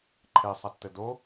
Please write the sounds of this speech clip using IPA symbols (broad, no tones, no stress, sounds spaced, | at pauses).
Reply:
ǃʰ e sˤ a tː ɘ d o